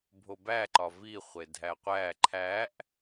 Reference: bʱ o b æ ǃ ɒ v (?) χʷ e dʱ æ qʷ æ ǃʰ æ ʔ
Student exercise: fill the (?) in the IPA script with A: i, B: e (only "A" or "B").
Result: A